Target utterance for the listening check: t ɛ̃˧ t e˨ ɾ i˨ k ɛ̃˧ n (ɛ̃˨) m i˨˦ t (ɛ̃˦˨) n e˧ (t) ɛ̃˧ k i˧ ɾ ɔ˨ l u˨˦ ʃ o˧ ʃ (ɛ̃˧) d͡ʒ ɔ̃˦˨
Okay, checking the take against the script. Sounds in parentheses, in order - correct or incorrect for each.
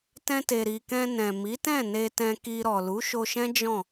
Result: correct, correct, correct, incorrect

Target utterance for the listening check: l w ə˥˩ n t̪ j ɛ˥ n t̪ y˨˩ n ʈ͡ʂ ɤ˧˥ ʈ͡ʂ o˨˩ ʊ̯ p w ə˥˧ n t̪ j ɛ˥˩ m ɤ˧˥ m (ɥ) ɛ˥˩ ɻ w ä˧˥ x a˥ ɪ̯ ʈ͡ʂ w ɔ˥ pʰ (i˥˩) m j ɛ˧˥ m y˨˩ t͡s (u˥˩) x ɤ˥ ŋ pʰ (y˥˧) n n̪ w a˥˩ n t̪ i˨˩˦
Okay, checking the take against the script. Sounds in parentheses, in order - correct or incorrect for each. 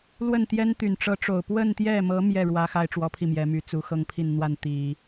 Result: incorrect, correct, incorrect, incorrect

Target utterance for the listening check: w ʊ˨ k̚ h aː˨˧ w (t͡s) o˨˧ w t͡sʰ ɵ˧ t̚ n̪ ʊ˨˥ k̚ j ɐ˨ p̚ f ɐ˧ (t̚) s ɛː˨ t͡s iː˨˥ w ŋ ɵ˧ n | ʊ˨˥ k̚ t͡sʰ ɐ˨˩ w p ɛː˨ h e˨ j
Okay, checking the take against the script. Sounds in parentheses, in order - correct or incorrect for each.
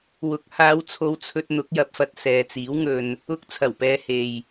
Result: incorrect, correct

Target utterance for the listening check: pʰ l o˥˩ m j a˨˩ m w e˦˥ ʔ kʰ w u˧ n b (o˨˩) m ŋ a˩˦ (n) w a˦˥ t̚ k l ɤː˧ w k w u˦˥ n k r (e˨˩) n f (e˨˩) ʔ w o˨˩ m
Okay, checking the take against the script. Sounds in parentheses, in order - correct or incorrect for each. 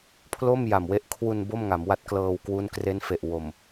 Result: incorrect, incorrect, incorrect, correct

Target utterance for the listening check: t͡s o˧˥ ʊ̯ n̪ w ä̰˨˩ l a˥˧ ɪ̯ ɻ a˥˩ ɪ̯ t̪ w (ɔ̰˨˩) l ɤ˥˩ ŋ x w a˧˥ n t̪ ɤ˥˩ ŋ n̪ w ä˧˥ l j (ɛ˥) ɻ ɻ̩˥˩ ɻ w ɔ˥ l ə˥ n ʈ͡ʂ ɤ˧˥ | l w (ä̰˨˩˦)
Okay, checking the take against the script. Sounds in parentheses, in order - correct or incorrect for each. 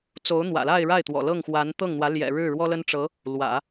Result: correct, incorrect, correct

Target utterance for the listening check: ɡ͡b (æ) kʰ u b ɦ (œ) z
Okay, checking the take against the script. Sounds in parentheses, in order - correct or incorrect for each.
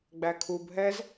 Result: correct, incorrect

